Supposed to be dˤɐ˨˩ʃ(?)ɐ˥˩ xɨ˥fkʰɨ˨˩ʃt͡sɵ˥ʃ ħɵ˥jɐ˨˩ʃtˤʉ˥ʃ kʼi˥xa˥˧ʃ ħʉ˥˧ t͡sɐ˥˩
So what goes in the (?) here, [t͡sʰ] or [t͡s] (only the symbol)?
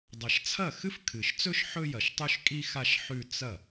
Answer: t͡sʰ